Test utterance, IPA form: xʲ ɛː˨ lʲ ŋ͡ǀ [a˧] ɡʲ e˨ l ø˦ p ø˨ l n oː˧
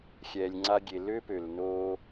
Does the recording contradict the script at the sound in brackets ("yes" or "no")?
no